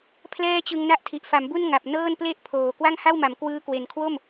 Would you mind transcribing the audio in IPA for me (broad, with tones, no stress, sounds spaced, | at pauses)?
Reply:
pʰ l ɛː˥˩ t͡ɕ ɯ˧ ŋ n a˦˥ ʔ tʰ i˨˩ ʔ f a˩˦ m b u˥˩ n ŋ a˨˩ p̚ n ɤː˥˩ n p l e˥˩ ʔ pʰ oː˨˩ k w a˥˩ ŋ h a˥˩ w m a˩˦ m k w ɯː˦˥ k w e˨˩ n kʰ w o˥˩ m